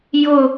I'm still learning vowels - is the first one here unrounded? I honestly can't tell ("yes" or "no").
no